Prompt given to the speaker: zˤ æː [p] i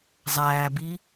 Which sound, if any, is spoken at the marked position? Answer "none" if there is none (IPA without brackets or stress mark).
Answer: b